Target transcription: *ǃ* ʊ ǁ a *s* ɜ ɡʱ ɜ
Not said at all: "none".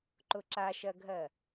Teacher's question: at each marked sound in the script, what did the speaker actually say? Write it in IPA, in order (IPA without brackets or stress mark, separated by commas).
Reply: ǃ, ʃ